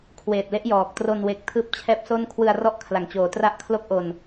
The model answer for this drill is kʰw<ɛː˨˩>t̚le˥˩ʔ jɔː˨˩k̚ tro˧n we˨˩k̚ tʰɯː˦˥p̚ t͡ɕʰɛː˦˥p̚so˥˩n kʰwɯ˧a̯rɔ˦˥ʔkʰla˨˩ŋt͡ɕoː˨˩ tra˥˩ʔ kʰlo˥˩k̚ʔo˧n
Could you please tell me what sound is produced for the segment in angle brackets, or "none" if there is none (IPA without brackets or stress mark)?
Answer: eː˨˩